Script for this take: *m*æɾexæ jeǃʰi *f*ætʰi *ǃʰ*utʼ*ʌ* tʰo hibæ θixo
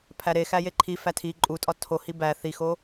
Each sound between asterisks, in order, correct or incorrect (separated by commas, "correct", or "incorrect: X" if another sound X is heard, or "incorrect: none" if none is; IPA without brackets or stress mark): incorrect: pʰ, correct, incorrect: ǃʼ, incorrect: ɒ